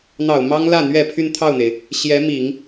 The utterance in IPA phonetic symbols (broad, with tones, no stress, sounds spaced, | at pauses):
n̪ ɑ˨˩ ʊ̯ m ɑ˥ ŋ l ä˥˩ n̪ ɥ ɛ˨˩ pʰ y˥˧ n t̪ʰ ɑ˥˩ ʊ̯ n̪ e˩ ɪ̯ | ɕ j ɛ˧˥ m i˨˩˦ ŋ